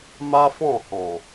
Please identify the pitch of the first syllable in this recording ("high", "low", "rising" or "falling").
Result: high